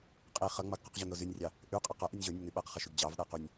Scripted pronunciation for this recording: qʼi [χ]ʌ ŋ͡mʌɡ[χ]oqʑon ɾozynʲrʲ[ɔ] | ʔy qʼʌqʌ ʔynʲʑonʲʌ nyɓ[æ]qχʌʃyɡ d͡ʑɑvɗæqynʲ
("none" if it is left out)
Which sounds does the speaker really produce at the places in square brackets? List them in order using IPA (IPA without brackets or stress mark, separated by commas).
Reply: χ, q, ɑ, æ